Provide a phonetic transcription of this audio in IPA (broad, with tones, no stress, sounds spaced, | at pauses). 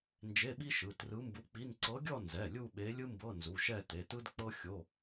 n d͡ʒ e˧˥˧ ɓ i˥ ʃ ɯ˩˧˩ t r ɯ˧˥ m b u˧˥ k͡p i˧˥˧ n ǀ ɤ˧˥ ɡʲ ɔ˥˧ n z ɛ˩˧˩ lʲ u˥˧ ɓ e˧˥ lʲ ɯ˥ m b ɤ˧˥˧ n z u˩˧˩ ʃ ɛ˥˧ t e˩˧˩ t ɯ˥ d k͡p ɤ˥ xʲ o˧˥˧